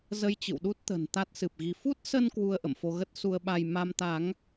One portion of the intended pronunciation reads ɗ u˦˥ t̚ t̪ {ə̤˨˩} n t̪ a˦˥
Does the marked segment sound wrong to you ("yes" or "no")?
no